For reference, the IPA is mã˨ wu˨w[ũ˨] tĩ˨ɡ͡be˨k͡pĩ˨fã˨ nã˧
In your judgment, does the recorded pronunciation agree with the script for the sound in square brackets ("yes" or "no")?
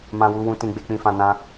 yes